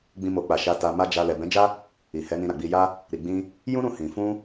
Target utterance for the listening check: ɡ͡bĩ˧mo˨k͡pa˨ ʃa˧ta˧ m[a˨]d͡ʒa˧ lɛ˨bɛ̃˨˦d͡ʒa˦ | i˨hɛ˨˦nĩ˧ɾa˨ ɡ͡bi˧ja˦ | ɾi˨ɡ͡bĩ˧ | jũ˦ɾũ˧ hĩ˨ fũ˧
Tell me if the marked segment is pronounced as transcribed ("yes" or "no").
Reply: no